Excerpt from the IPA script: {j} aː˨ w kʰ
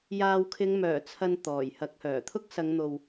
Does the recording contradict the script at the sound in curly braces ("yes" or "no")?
no